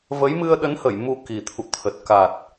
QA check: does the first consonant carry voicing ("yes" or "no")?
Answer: yes